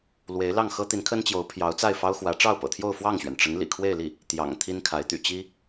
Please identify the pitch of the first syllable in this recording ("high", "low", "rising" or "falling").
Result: rising